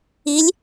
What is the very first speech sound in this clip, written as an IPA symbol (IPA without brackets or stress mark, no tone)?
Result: i